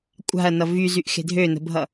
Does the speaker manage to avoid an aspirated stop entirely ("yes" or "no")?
yes